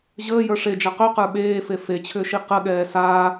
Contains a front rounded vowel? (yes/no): yes